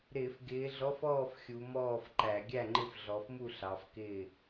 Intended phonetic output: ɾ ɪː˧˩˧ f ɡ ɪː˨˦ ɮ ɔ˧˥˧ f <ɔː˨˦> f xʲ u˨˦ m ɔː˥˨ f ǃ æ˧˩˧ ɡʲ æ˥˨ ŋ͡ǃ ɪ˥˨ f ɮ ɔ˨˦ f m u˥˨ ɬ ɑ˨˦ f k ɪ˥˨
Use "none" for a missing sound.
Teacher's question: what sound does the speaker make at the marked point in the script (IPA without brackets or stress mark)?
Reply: ɔː˥˨